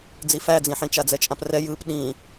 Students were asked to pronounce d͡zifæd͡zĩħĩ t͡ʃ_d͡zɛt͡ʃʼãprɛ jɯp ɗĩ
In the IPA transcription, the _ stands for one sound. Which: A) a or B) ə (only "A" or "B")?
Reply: A